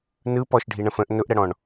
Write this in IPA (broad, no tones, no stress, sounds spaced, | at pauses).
n ɯ p ɔ ʃ ɖʱ i ɳ ə̃ f ə̃ ʔ n ʊ ʔ ɾ ə ɽ ɔ̃ ɳ